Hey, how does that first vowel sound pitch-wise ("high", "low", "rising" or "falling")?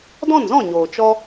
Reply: falling